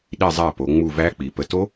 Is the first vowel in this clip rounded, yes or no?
no